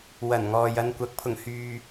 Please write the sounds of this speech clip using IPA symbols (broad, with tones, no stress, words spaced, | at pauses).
wɐ˨˩nŋɔː˨j ɐ˧nkʷɐ˨˥k̚ pʰʊ˨˩ŋhyː˨